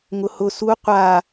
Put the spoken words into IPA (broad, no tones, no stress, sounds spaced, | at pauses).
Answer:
ŋ ʊ h ʊ s u qʷ a